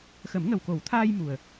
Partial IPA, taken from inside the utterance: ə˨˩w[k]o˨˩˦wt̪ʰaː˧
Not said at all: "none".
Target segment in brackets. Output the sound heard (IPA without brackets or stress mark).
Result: k